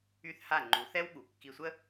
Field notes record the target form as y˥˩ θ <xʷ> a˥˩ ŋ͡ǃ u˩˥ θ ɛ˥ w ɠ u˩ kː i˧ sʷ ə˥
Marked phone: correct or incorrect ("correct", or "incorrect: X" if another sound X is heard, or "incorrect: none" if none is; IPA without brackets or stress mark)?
incorrect: h